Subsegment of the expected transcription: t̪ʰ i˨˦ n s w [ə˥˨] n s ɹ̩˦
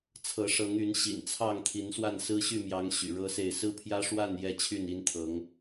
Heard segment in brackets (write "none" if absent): a˥˨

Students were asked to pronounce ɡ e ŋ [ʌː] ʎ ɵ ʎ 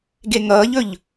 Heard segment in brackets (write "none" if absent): ʌː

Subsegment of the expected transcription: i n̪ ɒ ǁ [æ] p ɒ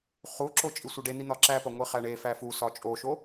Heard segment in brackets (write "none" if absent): æ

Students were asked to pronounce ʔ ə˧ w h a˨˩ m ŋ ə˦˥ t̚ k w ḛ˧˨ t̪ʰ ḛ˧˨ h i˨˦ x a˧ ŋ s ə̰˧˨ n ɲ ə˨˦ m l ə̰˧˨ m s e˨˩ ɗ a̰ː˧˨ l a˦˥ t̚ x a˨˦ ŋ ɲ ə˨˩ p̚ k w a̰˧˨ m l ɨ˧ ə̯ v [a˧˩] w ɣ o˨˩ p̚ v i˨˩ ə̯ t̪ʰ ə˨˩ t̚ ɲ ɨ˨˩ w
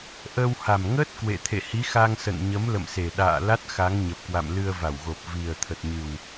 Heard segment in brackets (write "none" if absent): a˧˩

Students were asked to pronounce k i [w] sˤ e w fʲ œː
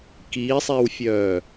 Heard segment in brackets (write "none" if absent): none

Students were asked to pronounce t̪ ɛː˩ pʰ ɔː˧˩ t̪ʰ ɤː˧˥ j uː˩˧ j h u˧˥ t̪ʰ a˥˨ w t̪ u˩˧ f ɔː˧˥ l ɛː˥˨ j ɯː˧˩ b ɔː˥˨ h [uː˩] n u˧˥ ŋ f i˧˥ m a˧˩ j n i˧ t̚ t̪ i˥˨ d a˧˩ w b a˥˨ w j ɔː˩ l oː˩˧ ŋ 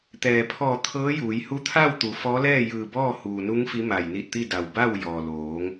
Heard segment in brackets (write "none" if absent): uː˩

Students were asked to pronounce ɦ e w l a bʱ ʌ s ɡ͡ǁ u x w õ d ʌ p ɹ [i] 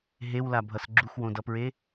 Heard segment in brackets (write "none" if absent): e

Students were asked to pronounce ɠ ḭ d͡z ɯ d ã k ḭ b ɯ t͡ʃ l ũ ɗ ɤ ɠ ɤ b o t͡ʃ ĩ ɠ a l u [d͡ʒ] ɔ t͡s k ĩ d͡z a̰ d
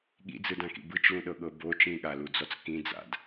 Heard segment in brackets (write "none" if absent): d͡z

